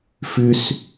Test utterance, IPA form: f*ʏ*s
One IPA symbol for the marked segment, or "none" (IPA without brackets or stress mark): ʏ